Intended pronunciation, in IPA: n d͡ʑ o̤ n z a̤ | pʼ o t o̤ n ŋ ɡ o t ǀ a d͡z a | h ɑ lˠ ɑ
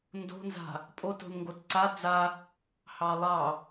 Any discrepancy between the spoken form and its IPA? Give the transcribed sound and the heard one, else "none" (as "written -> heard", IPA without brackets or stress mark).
d͡ʑ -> d